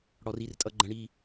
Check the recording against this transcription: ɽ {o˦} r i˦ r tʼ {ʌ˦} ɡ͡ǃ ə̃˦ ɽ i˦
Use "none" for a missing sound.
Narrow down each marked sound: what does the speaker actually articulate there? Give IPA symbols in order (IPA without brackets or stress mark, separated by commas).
ɔ˦, ʌ˦